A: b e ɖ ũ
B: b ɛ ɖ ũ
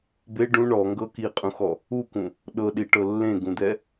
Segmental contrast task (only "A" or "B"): A